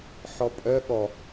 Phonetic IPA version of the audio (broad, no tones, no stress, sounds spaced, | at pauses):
ħ ɔ pʼ œ ɠ ɔ